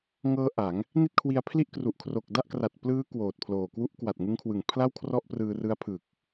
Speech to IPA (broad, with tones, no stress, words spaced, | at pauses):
ŋɤː˦˥ ʔa˩˦ŋ | ni˥˩t̚kʰwi˧a̯ pʰli˥˩ʔkru˨˩ʔ kʰro˨˩k̚da˥˩ʔkra˨˩t̚ plɯː˦˥ kwoː˨˩t̚pʰloː˨˩ kwu˦˥ʔkwa˨˩t̚ŋɯ˦˥ŋkʰwɯ˨˩ŋ pʰla˥˩w kʰrɔ˥˩ʔprɯː˧ rɯ˦˥a̯ pʰɯ˨˩k̚